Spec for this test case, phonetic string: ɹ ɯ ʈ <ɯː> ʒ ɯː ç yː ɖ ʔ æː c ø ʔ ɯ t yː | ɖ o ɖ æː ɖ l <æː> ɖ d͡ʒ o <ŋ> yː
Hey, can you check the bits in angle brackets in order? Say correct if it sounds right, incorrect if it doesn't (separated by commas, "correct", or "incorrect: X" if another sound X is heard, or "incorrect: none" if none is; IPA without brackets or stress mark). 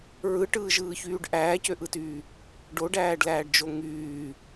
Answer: correct, correct, correct